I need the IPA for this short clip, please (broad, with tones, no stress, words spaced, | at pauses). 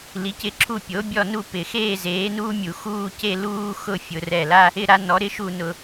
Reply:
li˨˥cɪ˥˧ǁʰu˥˧ pʲo˨˥bʲɔ˥˧nu˥˧ pɪ˧˩˧ xeː˥˧ zeː˨˥nuː˥mʲu˧˩˧ xuː˥˧ce˥˧ luː˥xʊ˥˧ fʲʊ˧˩˧rɛ˧˩la˥ | ɪ˥˧ɾa˥ nɔ˨˥ɾɪ˥ʃu˥˧ nʊ˧˩˧